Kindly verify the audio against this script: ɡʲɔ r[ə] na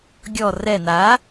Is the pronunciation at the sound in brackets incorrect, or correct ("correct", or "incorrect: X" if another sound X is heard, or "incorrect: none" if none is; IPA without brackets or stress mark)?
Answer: incorrect: ɛ